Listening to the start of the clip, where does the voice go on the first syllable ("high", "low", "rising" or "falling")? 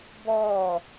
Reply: falling